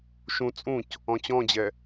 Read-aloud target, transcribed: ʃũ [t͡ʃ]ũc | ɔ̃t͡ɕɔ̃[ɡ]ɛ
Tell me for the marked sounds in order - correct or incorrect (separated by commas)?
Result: incorrect, incorrect